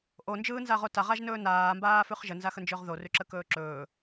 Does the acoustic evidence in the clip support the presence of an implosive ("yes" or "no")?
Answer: no